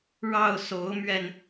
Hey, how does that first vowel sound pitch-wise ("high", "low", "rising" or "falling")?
falling